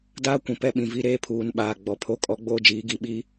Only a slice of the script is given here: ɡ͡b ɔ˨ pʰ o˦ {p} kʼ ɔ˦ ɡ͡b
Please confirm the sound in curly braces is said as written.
no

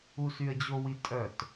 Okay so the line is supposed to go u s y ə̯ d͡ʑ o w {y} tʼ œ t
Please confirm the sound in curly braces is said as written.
no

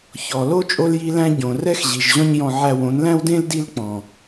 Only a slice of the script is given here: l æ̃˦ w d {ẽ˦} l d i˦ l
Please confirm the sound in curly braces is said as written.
yes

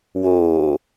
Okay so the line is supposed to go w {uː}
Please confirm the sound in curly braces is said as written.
no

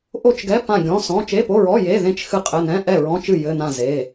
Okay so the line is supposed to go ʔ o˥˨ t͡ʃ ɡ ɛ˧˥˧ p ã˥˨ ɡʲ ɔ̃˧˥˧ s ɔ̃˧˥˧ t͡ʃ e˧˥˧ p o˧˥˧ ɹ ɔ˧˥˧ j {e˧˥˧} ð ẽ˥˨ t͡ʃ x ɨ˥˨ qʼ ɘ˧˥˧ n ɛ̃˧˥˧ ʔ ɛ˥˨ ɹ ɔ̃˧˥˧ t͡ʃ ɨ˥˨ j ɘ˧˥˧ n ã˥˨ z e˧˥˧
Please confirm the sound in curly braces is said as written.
yes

